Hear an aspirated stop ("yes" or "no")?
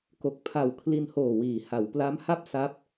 yes